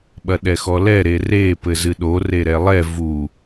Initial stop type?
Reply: implosive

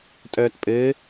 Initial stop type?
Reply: ejective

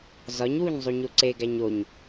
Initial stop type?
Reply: click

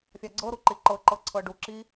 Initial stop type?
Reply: click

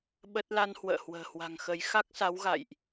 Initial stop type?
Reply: implosive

